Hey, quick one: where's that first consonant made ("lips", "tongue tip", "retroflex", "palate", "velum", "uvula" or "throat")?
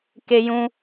velum